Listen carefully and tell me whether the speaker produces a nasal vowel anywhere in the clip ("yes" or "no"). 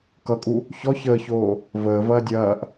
no